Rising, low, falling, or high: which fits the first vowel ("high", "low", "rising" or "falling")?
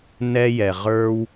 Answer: high